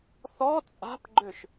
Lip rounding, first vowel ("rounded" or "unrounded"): rounded